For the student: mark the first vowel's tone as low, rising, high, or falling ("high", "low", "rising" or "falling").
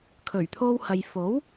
low